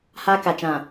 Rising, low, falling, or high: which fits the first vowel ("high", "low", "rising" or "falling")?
high